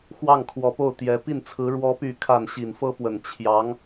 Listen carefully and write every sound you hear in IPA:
x w ɑ˥˩ ŋ kʰ w ɔ˨˩ p o˥˩ ʊ̯ t̪ j ɛ˧˥ p i˥˩ n t͡sʰ ɹ̩˧˥ ɻ w ɔ˧˥ p y˨˩ kʰ a˥˩ n ɕ i˨˩ n f ɤ˥ p w ə˨˩ n t͡ɕʰ j ɑ˧˥ ŋ

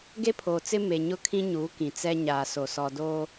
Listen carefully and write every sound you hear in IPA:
ɡ e˦ pʰ oː˨ t͡s ɪ˦ m e˨ ɲ ʊ˦ kʰ ĩ˦ ɲ uː˨˦ k ĩ˨ t͡s ɛ˦ ɲ aː˨ s o˨ s ɔ˨ d oː˦

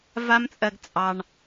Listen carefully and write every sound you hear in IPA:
v a˦ m t͡sʼ ɜ˧ ɡ t͡sʼ ɑ˧ ɳ

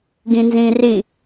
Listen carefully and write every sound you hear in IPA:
ɡ ĩ n z ĩː r i

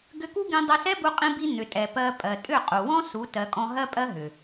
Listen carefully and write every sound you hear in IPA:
ɡ ʏ˧ k u˦ ɡ ĩ˧ dˤ ɛ˧ s ɛ˦ b u˧ qʼ ĩ˧ b i˧ n̪ ʏ˨ tʼ ɛ˨ p ɜ˧ pʼ ɜ˨ tʼ ʏ˦˨ qʼ u˨ w ɔ̃˦ s u˨˦ t ɜ˨ kʼ ɔ̃˧ ɦ ɜ˦ pʼ ɜ˦ ɦ ʏ˨

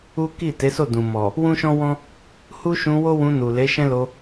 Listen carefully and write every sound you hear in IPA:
u˦ k i˦˨ t e˨˦ s o˦˨ d ũ˨ m ɔ˨ | w ũ˦ ʃ ɔ̃˦ w ɔ̃˦ | h u˦ ʃ ũ˧ w o˦ w ũ˧ n u˨ l e˨˦ ʃ ɛ̃˦ l o˧

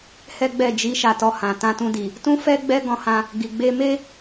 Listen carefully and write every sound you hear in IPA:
h ɛ˦ ɡ͡b ɛ˦˨ d͡ʒ i˨˦ ʃ a˧ t ɔ˧ h ã˨ t ã˧ t ũ˧ d i˨ | t ũ˦ f ɛ˦ ɡ͡b ɛ˦ ɡ ɔ̃˧ h ã˧ | ɡ i˨ ɡ͡b e˧ m e˦

